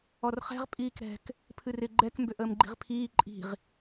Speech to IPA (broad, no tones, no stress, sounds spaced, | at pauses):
ɔ r χ ɛ̤ ʁ pʼ iː k ɾ ɛ̤ k | pʰ ɨ r ɪ ɡ͡ǃ ɛ k m b ʏ ʔ əː m ɡ͡ǃ i̤ ʁ pʰ iː ǃʼ i̤ ʁ